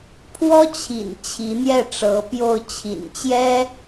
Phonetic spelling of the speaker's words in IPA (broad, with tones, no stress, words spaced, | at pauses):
pʰwɔ˥t͡ɕʰḭ˨˩n t͡ɕʰi˧˥n̪jɛ˥˩ʈ͡ʂɤ˧˥ pjo˥˩ʊ̯ t͡ɕʰḭ˨˩nt͡ɕjɛ˥